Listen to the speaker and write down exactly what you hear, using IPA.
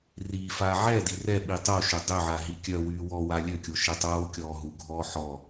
r iː f aː ʕ ɛ d i r ɛ ɓ i tˤ o ʃ ø dˤ ø ʕ a ɦ i kʲ œ w yː w ɔ w a lʲ ø kʲ o ʃ ɛ tˤ oː kʲ ɔː ɦ u ɡʱ ɔː ħ ɔ

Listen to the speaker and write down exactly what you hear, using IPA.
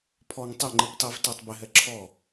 pʰ ɔ ŋ tˤ ɛ ŋ͡ǃ i p tˤ i v t æ tˤ b ɪ ɦ ɛ ǁʰ ɔ

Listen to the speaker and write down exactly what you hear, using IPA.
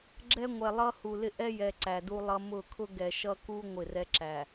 ɡ͡ǁ ɛ˦ ŋʷ ɛ˨ lˠ ʌ˦ h u˨ l ɪ˦ ʔ ɛ˦ j ɛ˨ ǀ æ˨ d u˦ lˠ ʌ˦ m ʊ˦˨ kʰ ʊ˦ ɡ ɛ˨ ʃ ʌ˦ k u˦ ŋʷ ɪ˦˨ r ɛ˦ ǁ æ˨

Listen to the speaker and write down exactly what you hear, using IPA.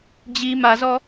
d͡ʑ i m a z ɔ

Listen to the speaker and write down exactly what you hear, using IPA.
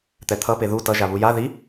t̪ ɛ t̪ʰ ʌ p e ð u t ʌ ʒ a β u j a ð i

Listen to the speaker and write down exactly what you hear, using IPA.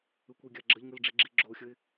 ɯ kʷ i ɡʲ a ɡ͡ǁ ə ʎ ŋ ɯ l ɖ͡ʐ i ɡ͡ǁ i ɡ͡ǁ o xʲ ə ɪ̯

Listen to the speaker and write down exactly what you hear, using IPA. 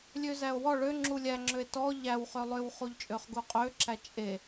lʲ ø z æ o̯ w ɔ ɭ ø ŋ͡ǁ u lʲ æ ŋ͡ǁ ø e̯ t ɔ ʎ æ w χ ø lˠ ø w χ u ʎ t͡ʃʼ ø χ ɡ u qʼ ø ǁ æ t͡ʃʼ e

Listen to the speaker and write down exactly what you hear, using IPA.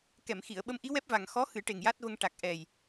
k ɛ˨˩˨ m x i˨˩˨ ə̯ ɓ ə˧˥ m ʔ i˧˥ w ɛ˦˥ p̚ v a˨˩ ŋ x ɔ˧˥ x ɨ˨˩˦ ʈ e˨˩ ŋ j a˦˥ t̚ v ə˧ ŋ ʈ a˨˩ k̚ ʔ ɛ˨˩ j

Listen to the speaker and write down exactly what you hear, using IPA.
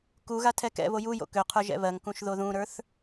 k u ɣ a tʰ ɛ k ɛ̰ β o j u j o̰ k ø qʰ ə˞ ʒ ɛ̰ β ɜ ŋ k ũ ʃ ð o ð ũ ɾ ə˞ θ

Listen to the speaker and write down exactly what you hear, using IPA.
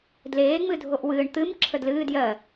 d l eː ŋ͡m ɨ dʱ o ʔ w ɨː ɳ t̪ ɨ m ǁʰ ə d l ɨː d j ɜ

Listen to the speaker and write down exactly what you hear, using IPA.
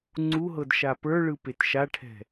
ŋ͡ǀ u ɦ ɤ d ʃ a p ə˞ ɭ ɯ p e t ʃ a ʈʰ ɛ̤

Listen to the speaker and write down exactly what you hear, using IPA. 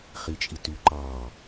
χ i t͡ʃʼ i t y ǃ ɑ

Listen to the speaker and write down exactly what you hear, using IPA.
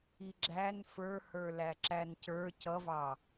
i ɡ͡ǁ æ n f ə˞ h ə˞ l æ ǁ æ n c ə˞ c ʌ v ɑ

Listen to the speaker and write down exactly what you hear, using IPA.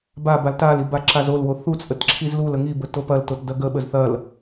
b a b a l t a l i b a ǁ a z o l w o θ u t͡sʼ ə t ǁʰ i z l u l ə ŋ i b ə t o p ɐ l t o t d ɐ ɡ ə ɓ ə z θ ɐ l

